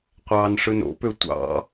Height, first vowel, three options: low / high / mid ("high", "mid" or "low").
low